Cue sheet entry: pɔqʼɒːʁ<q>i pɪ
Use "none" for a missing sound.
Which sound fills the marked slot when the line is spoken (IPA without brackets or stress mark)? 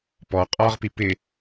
p